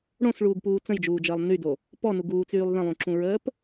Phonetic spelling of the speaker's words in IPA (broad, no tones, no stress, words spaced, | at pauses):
ɽõsɭuːɡpuː t͡sə̃jd͡ʒuːd͡ʒəːlˠ nydo | pɔnuɡuːt͡syːlˠ ðə̃lˠũǁũɹəːp